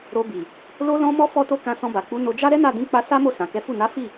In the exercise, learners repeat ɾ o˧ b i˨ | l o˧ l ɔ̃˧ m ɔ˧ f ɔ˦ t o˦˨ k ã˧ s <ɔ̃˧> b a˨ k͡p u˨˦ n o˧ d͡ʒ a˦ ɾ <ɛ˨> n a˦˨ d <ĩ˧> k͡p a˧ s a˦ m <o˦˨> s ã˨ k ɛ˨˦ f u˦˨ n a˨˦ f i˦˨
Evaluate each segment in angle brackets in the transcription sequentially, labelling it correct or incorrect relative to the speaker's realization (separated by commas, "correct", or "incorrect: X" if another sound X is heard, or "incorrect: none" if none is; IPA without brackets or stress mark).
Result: correct, incorrect: ɛ˦, correct, correct